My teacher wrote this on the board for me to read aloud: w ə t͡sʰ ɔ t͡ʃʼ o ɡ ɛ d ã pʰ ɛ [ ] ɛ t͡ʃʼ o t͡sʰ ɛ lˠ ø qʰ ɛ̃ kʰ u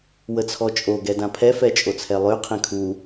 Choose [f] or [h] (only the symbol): f